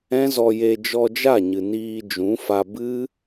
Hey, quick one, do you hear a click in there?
no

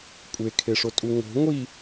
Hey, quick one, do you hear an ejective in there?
yes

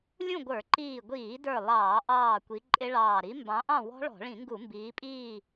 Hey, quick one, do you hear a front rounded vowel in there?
no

